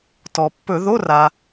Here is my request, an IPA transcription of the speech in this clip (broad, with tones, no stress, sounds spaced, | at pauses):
t ɔ˩ pː ɵ˧˩˧ ð o˧˥˧ r a˩